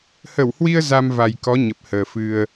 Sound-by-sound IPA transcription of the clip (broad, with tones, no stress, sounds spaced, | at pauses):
h ə˧˩ w h w i˧ ə̯ z a˧ m v a˨˩ j k ɔ˨˦ ɲ ə˨˩ p̚ h əː˨˩ f ɨ˧ ə̯